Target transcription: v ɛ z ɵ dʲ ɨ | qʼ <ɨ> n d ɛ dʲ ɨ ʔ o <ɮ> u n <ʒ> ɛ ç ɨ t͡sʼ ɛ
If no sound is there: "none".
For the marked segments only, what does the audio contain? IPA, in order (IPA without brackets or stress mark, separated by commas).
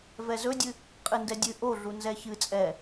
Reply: ɨ, ɮ, z